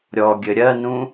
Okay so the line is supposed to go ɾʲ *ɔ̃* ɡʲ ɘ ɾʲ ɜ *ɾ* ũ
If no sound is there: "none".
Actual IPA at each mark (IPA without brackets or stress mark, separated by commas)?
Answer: ɔ, n